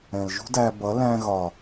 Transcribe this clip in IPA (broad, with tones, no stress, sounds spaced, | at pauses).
ɛ̃˨ l ʒ ṳ˦ d æ˧ b ʌ˨˦ l æ̃˧ ɣ ɒ˨